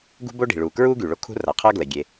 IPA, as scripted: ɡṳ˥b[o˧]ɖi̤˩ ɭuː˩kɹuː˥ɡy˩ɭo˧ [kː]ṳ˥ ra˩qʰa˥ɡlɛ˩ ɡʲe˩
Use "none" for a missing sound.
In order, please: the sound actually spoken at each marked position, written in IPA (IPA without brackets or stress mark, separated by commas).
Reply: o˥, kʰ